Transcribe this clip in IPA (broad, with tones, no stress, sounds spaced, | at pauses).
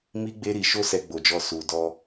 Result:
m i˦ ɡ͡b e˦ ɾ i˧ ʃ o˦ s ɛ˧ ɡ͡b o˨ d͡ʒ ɔ˧ s u˨ d ɔ˧